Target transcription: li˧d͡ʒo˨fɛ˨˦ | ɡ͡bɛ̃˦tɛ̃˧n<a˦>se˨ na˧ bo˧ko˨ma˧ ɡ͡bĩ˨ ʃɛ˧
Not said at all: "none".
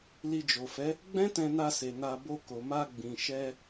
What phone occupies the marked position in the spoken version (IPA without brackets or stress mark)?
a˧